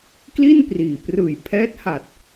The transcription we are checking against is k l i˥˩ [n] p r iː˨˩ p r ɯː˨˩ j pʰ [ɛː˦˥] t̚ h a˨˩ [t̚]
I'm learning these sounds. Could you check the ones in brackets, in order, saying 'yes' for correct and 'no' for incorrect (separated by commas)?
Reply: yes, yes, yes